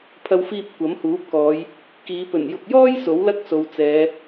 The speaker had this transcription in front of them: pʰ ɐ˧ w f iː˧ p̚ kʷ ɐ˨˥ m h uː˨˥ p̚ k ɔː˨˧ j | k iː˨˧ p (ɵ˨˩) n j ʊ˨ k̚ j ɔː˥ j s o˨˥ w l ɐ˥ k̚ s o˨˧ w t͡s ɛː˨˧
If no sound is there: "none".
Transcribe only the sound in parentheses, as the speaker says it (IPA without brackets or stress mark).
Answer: ɵ˨˩